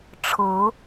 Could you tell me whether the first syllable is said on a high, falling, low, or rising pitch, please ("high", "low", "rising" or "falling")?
rising